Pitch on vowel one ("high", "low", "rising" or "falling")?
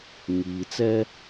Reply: low